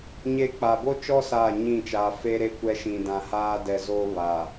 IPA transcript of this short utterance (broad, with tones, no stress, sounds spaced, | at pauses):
ɲ e˦ k͡p a˨ b o˦ t͡ʃ ɔ˦ s aː˦˨ ɲ ĩ˦˨ t͡ʃ aː˨ f e˦ ɾ e˦ kʷ ɛ˦ ʃ ĩ˨ d ã˨ h aː˦ d ɛ˨ z oː˦ β a˨